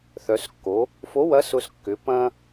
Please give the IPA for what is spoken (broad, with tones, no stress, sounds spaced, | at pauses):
θ œ˩˧ s kː o˩˧ | f o˨˥ w ɐ˨˥ s ʊ˧ s kː ʏ˩˧ p ɐ̃˧